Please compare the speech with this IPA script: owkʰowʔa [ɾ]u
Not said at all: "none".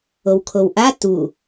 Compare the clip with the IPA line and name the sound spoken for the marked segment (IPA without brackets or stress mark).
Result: t